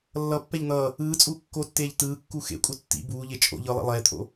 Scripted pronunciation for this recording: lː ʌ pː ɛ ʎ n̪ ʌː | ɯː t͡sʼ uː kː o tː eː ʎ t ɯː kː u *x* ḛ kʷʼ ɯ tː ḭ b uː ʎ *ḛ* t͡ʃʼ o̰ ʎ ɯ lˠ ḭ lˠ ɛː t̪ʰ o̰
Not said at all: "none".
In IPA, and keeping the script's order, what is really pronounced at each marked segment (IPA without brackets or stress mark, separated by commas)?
x, e